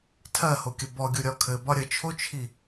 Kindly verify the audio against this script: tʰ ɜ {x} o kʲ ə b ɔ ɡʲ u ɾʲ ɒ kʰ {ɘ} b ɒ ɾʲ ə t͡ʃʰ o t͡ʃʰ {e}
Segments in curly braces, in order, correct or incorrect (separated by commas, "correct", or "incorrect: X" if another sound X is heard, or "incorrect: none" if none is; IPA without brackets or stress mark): incorrect: h, correct, incorrect: i